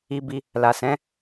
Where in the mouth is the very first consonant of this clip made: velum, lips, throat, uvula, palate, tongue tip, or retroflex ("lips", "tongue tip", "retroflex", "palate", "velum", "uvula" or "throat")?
lips